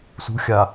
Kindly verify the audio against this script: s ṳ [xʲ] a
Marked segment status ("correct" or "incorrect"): correct